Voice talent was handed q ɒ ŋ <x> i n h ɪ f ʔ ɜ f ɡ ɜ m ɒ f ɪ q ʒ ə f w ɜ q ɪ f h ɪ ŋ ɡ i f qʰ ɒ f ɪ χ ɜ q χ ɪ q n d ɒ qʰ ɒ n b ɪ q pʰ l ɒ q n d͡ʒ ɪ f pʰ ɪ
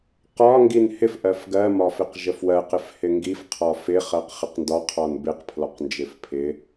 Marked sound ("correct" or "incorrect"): incorrect